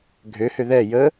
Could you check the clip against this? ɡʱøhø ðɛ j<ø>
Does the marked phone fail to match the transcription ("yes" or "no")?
yes